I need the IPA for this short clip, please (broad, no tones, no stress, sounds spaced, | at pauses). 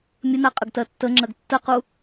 mʲ ə n a qʼ ə ɡ t ɜ tː ə ŋ͡ǁ ɜ ɡ tː ə q u